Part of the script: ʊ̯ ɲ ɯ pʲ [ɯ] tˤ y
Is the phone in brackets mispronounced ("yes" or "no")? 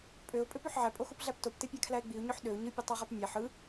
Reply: no